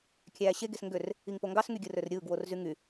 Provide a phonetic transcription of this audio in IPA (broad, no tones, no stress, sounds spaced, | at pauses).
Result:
kʲ æː ɕ e ɡ e s ŋ ɡ ø r | i ŋ p o ŋ ɡ ɑ s ŋ y ɡʲ ɯ r ø r ɾʲ ɯː ɡ w o r z y ŋ y